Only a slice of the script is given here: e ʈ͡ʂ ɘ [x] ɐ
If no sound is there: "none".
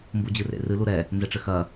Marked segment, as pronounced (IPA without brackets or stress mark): x